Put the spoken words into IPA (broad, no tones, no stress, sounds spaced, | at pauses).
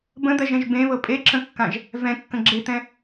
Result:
b ə̃ d̪ ɜ ʒ ɛ̃ ʒ b ẽ β ɤ pʼ e ǁ ə̃ kː ã ʒ | v ɛ̃ kː ə̃ ɡ͡ǁ e t̪ ɛ̃